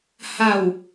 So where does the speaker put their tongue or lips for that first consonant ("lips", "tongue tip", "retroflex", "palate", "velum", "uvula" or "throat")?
throat